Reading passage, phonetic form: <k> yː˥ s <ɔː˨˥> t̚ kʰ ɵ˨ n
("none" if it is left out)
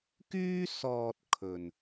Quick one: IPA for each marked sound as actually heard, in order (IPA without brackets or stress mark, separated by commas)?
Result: k, ɔː˧